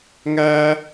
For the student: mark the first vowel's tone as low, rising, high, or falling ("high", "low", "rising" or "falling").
high